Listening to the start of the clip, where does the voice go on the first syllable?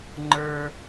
low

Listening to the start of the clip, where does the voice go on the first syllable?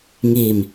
low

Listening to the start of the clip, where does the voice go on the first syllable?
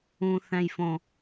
low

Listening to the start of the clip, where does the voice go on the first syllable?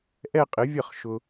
falling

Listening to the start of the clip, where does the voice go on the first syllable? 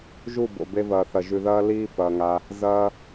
falling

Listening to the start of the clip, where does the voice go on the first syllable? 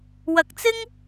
low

